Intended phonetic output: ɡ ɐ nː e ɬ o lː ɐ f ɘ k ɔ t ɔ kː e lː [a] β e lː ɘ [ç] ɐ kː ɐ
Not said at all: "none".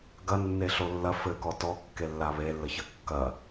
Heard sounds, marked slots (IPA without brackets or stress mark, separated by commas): a, ç